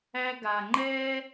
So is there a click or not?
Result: yes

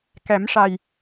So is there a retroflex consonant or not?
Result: yes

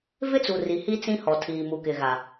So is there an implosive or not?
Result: no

